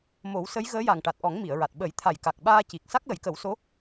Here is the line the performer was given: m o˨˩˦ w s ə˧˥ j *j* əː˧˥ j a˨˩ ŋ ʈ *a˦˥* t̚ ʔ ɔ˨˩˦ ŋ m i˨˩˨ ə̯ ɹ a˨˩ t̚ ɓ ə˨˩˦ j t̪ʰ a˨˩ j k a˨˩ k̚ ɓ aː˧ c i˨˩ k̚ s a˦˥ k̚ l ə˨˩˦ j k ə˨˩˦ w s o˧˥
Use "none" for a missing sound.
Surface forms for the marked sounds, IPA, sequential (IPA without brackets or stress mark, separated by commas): ɣ, a˨˩